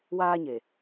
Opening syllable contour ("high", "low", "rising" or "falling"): high